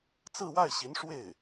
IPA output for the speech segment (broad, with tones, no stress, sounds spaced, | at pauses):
t͡s ɹ̩˥˧ w a˥˩ ɪ̯ ɕ i˧˥ n ʂ w e˥˩ ɪ̯